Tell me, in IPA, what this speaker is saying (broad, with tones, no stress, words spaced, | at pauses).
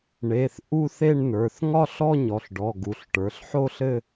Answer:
ɳe˩˧˩θ ʔu˥˧θe˥˧ɳnə˞˩˧˩θ ŋɒ˥˧ɬɔ˥˧ ɲɔ˩˧˩ɬɖɔ˩˧˩ ɡu˩˧˩ɬʈə˞˩˧˩ɬ ħo˥˧ɬɘ˥˧